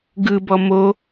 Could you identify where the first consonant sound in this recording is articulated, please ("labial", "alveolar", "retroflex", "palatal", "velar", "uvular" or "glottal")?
velar